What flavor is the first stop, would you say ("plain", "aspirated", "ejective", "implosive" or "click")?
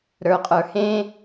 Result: ejective